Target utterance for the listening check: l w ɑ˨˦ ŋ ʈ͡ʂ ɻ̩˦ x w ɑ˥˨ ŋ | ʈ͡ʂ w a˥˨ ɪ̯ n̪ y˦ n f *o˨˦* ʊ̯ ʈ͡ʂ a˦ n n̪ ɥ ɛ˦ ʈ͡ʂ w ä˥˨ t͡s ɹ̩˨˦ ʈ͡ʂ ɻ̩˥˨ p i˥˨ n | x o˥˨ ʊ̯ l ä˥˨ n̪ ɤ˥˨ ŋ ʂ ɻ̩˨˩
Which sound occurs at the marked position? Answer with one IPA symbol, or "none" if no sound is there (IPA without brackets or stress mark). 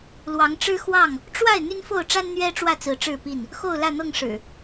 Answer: o˥˨